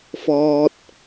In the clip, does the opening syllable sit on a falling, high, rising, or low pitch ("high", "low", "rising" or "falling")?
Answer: low